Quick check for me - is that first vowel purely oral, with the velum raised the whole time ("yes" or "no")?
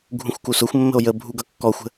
no